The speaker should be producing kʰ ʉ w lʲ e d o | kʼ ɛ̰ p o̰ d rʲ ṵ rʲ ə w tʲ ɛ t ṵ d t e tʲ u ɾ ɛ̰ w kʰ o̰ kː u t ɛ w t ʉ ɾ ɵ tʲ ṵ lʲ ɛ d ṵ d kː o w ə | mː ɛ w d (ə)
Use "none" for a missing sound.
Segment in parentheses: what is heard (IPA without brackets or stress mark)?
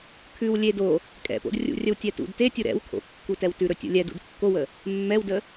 ə